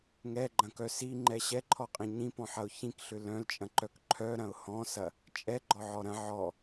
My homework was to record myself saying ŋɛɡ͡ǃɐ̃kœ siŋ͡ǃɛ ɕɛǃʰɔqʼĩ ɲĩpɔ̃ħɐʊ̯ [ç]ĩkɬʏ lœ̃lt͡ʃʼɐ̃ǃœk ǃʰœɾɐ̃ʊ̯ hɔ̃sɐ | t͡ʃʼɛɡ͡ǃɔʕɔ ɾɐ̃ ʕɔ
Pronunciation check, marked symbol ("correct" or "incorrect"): correct